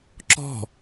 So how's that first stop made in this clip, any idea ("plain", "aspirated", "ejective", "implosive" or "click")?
click